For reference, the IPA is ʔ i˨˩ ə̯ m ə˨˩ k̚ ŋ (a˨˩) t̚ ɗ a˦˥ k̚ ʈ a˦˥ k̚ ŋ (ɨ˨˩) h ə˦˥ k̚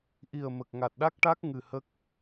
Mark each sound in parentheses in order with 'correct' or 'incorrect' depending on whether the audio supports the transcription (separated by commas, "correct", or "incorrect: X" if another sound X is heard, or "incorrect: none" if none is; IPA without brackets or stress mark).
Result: correct, correct